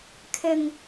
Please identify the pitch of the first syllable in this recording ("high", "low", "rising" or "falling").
low